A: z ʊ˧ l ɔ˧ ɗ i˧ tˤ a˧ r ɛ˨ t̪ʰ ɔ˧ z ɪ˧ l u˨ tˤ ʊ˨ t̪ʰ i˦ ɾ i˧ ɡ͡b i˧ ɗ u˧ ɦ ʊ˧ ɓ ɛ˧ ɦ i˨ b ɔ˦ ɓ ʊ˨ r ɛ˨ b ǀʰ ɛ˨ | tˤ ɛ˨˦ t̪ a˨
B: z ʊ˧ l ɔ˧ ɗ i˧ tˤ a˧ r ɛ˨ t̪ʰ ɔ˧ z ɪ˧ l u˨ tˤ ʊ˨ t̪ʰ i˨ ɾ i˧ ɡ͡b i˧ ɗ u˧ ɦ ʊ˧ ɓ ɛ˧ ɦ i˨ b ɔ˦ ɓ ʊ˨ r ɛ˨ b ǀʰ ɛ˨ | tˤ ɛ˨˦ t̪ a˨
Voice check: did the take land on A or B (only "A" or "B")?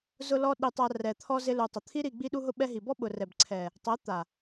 A